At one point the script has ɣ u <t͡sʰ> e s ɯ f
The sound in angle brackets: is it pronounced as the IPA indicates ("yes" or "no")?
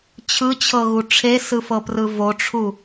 no